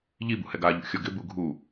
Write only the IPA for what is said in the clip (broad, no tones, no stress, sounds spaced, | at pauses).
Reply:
ʎ i b ṵ h ɛ ɡ a ʎ ṵ xʲ ɔ ɡ ɪ b u ɡʱ u